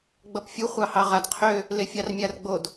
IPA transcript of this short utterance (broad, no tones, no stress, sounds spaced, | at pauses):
ɡ͡b ʌ p fʲ u χʷ ɑ h ɑ ʁ a d qʰ ø | l e fʲ ɑ r mʲ a r ɡ͡b o d